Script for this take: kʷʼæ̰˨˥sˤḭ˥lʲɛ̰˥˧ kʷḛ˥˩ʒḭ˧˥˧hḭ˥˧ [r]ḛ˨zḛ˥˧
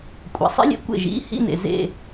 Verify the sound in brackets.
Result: incorrect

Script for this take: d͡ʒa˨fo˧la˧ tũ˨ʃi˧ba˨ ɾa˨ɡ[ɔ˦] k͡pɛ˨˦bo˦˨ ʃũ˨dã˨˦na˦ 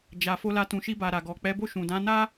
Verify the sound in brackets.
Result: incorrect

